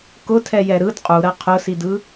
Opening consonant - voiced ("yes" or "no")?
no